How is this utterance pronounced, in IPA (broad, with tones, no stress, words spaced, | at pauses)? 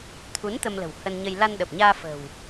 t̪ʰu˨˦n t̪ə˧mlə̤˨˩w hə˧nɲə˧j la˧nɗə˨˩p̚ɲaː˧ fə̤˨˩w